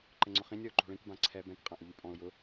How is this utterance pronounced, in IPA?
ǃɘŋ͡ǀʊχĩnʲ ɔʊ̯ǃo̤ɭĩk bãǀʰɛ bɛ̃k qʼãʔʊʎypʼɔ̃ʊ̯ jʊ

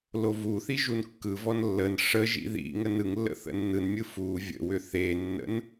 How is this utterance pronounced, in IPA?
lovuθi ʒunkːɯvɔn lːən ʂə ʒḭðḭŋən ɯŋlːə̰ θə̰nːɯnmʲɯ fu vʲə̰wʏ θenːə̰n

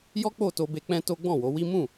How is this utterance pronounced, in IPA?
jɔ˦k͡po˦˨to˧be˧ k͡pɛ̃˦to˦ ɡ͡bɔ̃˦˨wo˨˦wi˦ mũ˦˨

